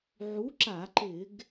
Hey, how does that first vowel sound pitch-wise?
rising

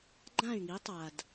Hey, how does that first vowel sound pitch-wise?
falling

